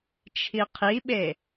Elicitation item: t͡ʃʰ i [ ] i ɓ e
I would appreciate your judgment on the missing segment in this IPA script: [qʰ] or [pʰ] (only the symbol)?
qʰ